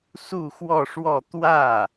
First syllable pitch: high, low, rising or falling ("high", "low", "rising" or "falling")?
falling